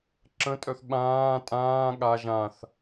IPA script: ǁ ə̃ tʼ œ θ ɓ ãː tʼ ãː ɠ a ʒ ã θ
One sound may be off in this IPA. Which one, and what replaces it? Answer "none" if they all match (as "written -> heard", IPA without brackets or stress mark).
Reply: none